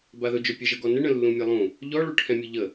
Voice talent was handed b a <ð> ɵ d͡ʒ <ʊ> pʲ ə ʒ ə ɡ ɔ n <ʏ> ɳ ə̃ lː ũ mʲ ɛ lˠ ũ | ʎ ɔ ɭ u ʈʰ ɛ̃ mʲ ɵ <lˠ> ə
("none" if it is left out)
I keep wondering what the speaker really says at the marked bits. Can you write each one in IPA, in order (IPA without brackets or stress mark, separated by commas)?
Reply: ð, ɵ, ə, ʎ